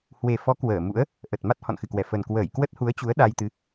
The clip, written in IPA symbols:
h w e˨˩ f ɔ˨˦ k w əː˧˩ m ṵ˧˥ ə̯ | ʔ ə˨˩ t̚ m a˦˥ t̚ h ɔ̰˧˨ n x ɨ˨˩ k w ɛ˧˩ f ə˨˩ n k w əː˧˩ j k w ə˦˥ t̚ h u˨˦ ə̯ t͡ɕ u˨˦ ə̯ ɗ a˧ j t̪ ɨ˨˦

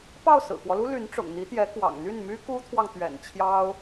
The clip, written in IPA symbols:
p ɑ˥˩ ʊ̯ s ɹ̩˨˩ k w ɔ˦ l u˥ l y˧˥ n ʈ͡ʂ ʊ̰˨˩ ŋ n̪ i˧˥ t̪ j ɛ˧˥ k w ɑ̰˨˩ ŋ n̪ y˥˩ n m y˥ k u˥ t̪ʰ w ɑ˨ ŋ t̪ ɥ ɛ̰˨˩ n t͡ɕʰ j ɑ˥ ʊ̯

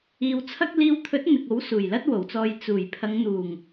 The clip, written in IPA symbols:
iː˧ w t͡sʰ ɐ˥ k̚ l iː˧ w t̪ʰ ɵ˨˥ t̚ n̪ ɪ˨ k̚ o˨˥ w s uː˨˩ j l ɐ˥ t̚ w o˨˩ w t͡s ɔː˧ j t͡s uː˨˩ j pʰ ɐ˨˧ ŋ n̪ uː˨˩ ŋ

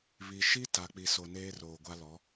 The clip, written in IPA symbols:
β i˨ ʃ i˦ t a˨ k͡p i˨ s o˨ n eː˦ r oː˨ ɡʷ a˦ l ɔ˨˦

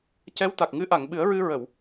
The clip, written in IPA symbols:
c ɛ˧˥ w t̪ a˨˩ k̚ ŋ ɨ˧˥ ʔ a˨˩˨ ŋ ɓ ɨ˨˩˦ ə̯ ɹ ɨ˧ ɹ ə˨˩˨ w

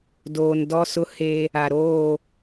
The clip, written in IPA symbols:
d oː˨ n d ɔ˦ s ʊ˦ h e˦ | a˨ ɾ oː˦˨

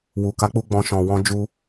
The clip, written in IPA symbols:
w u˨ k a˨˦ k͡p u˧ ɡ͡b ɔ̃˧ ʃ ɔ̃˨ w ɔ̃˧ d͡ʒ u˧

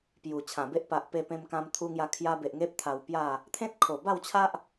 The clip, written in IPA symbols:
p j u˨˩ t͡ɕʰ ã˨˩ b e˦ ʔ p a˨ ʔ p e˧ p ẽ˧ m k ã˧ m t̪ʰ u˧ ŋ j a˧ kʰ j a˧ b e˨ ʔ ŋ e˦ p̚ t̪ʰ a˧ w p j a˥˧ | t̪ʰ ẽ˦ t̚ kʰ o˨˩ b a˥˧ w t͡ɕʰ a˦ ʔ

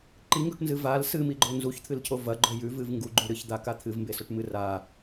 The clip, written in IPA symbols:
ǃ i ŋ ɡ ɵ ʈ n z ɨ v a l s ɨ m i ɡ͡ǃ o n z u ç t̪ʰ ɨ l cʰ o v ɐ ɡ͡ǃ ɵ j ʉ v ɨ v ŋ ɡ u ɡ͡ǃ ʉ ɾ ɨ ç d̪ a k a t̪ʰ ɨ v m b e s ɵ ʈ m ɨ r a

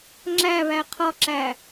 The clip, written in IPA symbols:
ŋ͡ǁ æ β æ qʰ ɒ ǁ æ

